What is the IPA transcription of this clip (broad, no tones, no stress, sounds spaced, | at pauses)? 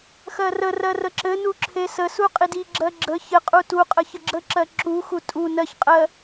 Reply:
x ɜ r ə r ɜ r ə ǁ ɘ n u ǁʰ e s ə s u qʼ i d i ɡ͡ǁ ɜ ɡ͡ǁ ə ç ɘ qʼ u t u qʼ ə ç ə ɡ͡ǁ ə ǁ ɜ ǁ u x u tʼ u n ɜ ç qʼ ɜ